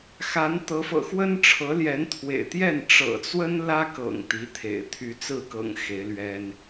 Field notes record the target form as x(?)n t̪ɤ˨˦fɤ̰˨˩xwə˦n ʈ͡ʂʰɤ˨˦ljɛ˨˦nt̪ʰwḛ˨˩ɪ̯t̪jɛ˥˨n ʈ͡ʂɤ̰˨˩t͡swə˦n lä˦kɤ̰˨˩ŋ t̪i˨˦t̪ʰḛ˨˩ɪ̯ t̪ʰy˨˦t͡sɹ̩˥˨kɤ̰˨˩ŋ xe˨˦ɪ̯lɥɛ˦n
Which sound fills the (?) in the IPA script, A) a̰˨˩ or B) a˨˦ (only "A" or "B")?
B